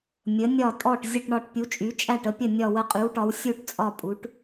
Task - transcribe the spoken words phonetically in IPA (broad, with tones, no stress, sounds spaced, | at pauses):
mʲ ə˩˧ nʲ ɒ˧˩ tʼ ɔ˧˩ ʈ zʲ ə˧˩ ʈ ɳ ɒ˧˩ ʈ pʲ u˩˧ t͡ʃʼ y˩˧ t͡ʃʼ æ˧˩ ʈ ə˩˧ pʲ ə˧˩ nʲ ɒ˧˩ w ə˧˩ qʼ y˩˧ w ʈ ɒ˩˧ w sʲ u˧˩ ʈ t͡sʼ ɒ˧˩ pʼ u˩˧ ʈ